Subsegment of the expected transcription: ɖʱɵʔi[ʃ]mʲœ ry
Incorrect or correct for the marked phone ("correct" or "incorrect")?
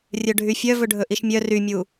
correct